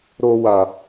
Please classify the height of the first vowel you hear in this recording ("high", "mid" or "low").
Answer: mid